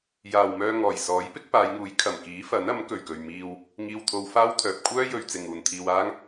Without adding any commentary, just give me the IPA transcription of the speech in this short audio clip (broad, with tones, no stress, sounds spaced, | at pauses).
j aː˨ w m œː˧ ŋ ɔː˨˩ j s ɔː˨˥ j p ɪ˥ k̚ p aː˨˧ j ŋ uː˨˥ j kʰ ɐ˨˩ m k iː˨˥ f ɐ˨˥ n ɐ˨˥ m k ɵ˨˩ ɥ k ɵ˨ ɥ m iː˧ w | ŋ iː˧ w t̪ʰ o˧ w f aː˥ w t̪ʰ œː˨ p̚ kʷʰ œː˥ j ɵ˨ ɥ t͡s ɪ˨ ŋ uː˨ n t̪ʰ iː˧ w aː˥ ŋ